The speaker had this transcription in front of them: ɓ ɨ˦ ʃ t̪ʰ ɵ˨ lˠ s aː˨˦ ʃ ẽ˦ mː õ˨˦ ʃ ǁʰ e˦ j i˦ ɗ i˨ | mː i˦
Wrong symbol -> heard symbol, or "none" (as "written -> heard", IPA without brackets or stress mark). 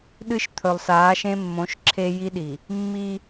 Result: ɓ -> ɗ